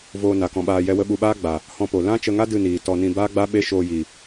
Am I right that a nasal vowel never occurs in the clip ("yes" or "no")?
no